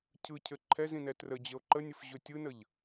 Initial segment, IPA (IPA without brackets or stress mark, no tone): cʰ